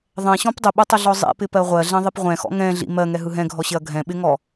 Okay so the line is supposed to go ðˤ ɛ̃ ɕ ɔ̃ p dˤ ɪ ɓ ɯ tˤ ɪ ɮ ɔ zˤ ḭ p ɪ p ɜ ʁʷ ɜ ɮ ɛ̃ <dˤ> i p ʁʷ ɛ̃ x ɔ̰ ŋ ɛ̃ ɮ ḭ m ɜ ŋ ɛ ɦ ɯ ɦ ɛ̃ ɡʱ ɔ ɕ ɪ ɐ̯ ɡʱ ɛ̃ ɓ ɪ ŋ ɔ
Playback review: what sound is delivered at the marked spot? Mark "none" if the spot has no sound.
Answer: ðˤ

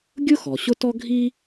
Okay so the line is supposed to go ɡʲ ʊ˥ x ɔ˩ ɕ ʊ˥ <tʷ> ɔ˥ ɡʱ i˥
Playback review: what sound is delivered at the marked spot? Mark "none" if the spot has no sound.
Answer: t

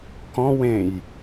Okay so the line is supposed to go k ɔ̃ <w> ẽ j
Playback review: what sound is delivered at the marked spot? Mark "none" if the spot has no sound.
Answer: w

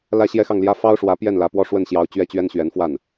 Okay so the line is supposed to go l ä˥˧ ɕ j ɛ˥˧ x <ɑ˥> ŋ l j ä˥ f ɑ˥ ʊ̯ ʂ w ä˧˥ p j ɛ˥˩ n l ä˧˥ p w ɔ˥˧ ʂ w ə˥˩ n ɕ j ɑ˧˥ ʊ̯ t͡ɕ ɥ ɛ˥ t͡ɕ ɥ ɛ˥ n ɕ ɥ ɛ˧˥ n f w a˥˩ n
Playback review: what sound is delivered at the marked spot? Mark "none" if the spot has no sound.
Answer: ɑ˥˩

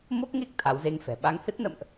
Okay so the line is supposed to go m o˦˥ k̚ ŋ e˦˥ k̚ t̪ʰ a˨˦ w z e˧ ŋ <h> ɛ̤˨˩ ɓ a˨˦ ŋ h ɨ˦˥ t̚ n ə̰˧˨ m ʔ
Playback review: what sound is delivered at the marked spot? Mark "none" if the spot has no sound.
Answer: f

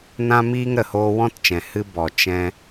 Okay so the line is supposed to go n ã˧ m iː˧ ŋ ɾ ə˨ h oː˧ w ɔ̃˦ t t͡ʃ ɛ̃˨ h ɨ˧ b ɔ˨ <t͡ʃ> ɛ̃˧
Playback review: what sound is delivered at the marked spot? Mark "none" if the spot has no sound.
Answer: t͡ʃ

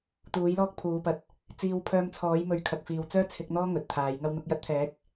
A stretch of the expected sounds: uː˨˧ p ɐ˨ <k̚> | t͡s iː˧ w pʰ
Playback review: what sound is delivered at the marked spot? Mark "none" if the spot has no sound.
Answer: t̚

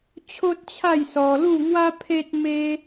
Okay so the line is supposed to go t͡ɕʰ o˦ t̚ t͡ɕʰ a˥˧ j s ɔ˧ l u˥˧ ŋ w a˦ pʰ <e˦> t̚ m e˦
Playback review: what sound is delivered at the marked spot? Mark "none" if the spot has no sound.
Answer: e˦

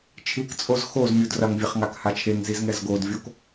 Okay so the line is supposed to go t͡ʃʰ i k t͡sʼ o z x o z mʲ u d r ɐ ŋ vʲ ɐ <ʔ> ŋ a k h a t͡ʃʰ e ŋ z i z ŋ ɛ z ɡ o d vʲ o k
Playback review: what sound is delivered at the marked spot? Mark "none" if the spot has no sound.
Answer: χ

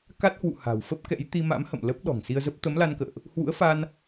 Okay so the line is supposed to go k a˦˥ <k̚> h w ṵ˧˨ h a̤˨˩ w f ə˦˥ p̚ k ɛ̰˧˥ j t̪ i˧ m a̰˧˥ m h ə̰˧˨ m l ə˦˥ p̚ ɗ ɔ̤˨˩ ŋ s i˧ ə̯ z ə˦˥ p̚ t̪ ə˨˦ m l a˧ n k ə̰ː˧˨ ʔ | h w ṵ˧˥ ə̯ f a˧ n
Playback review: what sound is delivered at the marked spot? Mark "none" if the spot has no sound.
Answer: t̚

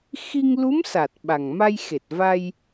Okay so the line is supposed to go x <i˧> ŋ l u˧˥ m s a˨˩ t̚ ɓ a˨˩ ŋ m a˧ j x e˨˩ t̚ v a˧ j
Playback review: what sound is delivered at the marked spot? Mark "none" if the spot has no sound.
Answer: i˧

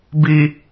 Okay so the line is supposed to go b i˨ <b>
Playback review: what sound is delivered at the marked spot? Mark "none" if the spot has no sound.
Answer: none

